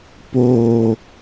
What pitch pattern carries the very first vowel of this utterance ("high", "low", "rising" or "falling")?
low